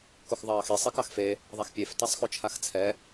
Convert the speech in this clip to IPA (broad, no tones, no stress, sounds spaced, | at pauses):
k o x ðˤ ɑː x i sˤ i k ɑ x f e | ðˤ a x pʲ e f t a sˤ x o t͡ʃʰ a x t͡sʰ ɛ